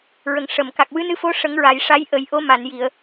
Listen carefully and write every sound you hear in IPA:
ɹ ə˨˩ ŋ ʂ ə˨˩˨ m k a˨˩ k̚ w ɨ˧˥ n ɨ˧˥ f o˧˥ ʂ ə˨˩˦ ŋ ɹ a˨˩ j ʂ a˧˥ j ʔ ə˨˩˦ j ʔ o˧˥ m a˨˩˨ n j i˨˩˨ ə̯

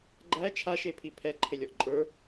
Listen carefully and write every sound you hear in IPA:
ɡ͡ǃ æ t͡ʃʰ a ʃ e pʰ i pʰ ɛ ǃʰ e lʲ ɔ ʔ ǃʼ ə˞

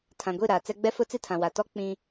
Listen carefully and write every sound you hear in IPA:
tʰ ã˨ ɡʷ i˦˨ ɾ aː˨ t͡s ɛ˦ ɡ͡b ɛ˦ f ʊ˦ t͡s i˦ tʰ ã˨ w a˨ t ɔ˦ k͡p ĩ˦

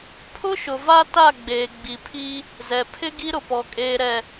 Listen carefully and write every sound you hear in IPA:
pʰ ʊ˦ ʃ ʊ˨ v a˦ t a˦˨ ɡ͡b eː˨ ɡ͡b i˨ pʰ i˦ | z ɛ˨ pʰ ɪ˦ ɡ i˦ ɾ ʊ˨ p ɔ˨ kʼ eː˨ ɾ ɛ˨

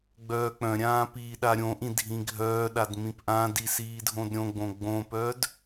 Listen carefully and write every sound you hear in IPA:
ɡ͡b œː k͡p œ̃ ɾʲ ãː p iː ɗ a ɾʲ õ ʔ ĩ dʱ ĩ ɡʱ œː ɗ a d m ĩ p ʔ ã d i s iː dʱ õ d ɾʲ õ ɡ͡b õ ɡ͡b õ p œ d

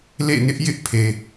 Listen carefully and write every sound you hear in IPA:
l ḛ˦˨ n ɪ˦ ʔ j ɪ˦ ʔ pʰ e˨

